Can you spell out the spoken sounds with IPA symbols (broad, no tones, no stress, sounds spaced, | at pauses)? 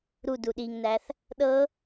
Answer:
ɾ u d u ɗ i ŋ n æ θ | ɗ ɤ